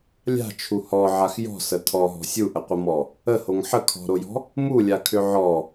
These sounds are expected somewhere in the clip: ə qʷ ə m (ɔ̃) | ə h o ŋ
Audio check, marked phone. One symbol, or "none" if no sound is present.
ɔ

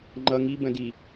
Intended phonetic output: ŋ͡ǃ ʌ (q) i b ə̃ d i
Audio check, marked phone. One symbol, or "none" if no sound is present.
ŋ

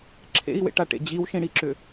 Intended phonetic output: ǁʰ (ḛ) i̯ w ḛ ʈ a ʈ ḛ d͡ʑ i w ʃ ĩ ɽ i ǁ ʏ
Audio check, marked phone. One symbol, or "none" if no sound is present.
ḛ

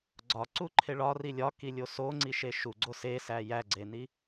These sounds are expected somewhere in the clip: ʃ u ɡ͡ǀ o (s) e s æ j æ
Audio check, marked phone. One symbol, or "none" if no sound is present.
s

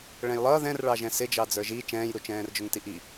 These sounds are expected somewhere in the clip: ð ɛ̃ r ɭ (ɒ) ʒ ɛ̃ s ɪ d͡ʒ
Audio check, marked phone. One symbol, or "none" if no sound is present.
ɑ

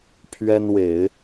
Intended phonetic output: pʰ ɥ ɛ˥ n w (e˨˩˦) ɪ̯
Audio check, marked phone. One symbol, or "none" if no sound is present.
e˨˩˦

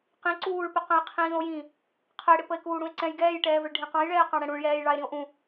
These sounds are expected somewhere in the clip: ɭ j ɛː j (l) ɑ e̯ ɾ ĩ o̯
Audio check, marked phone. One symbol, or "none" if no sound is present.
ɭ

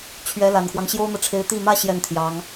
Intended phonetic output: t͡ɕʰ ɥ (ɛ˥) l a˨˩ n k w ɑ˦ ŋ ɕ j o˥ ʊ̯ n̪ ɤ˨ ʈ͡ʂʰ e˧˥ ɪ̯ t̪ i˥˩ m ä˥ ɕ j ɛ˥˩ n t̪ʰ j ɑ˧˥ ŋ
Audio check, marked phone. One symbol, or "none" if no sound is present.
ɛ˧˥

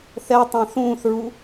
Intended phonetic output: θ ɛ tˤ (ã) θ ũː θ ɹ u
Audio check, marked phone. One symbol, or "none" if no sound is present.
ã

